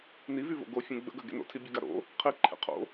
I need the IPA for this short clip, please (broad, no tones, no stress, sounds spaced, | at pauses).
n i v y v o̰ ɡ o fʲ ẽ ɡ͡b ə̰ ɡ œ ɡ ḛ n o̰ tʰ i bʲ œ ɡ a ɾ o̰ | qʰ i ǃʰ ḛ qʰ o̰